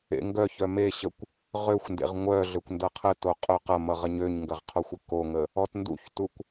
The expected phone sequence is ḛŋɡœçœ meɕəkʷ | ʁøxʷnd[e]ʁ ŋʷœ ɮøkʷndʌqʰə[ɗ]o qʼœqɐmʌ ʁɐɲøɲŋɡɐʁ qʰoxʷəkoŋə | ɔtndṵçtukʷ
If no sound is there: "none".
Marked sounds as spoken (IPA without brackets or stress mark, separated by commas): ḛ, t